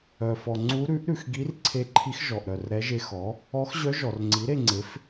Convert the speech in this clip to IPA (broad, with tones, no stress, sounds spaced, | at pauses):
œ˩ f ɔ˩ ŋ͡ǀ u˧˥ ɾ ʉ˩˥ ʔ ɾ ʉ˩ x ɡ i˧˥ r ǀʰ e˧˥ ǃʰ i˧˥ x ʒ ɔ˩ ʔ ɾ œ˩ r ɾ ɛ˧˥ ʒ e˧˥ x ɔ˩˥ | ɔ˧˥ x ʑ œ˧˥ ʒ ɔ˩ r ŋ͡ǀ i˩˥ ɾ e˥˧ ŋ͡ǀ e˩˥ f